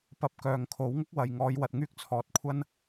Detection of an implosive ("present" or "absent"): absent